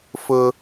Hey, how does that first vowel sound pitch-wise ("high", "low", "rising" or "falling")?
high